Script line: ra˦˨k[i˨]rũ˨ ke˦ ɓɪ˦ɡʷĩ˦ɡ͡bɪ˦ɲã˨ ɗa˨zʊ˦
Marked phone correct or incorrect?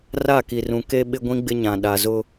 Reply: correct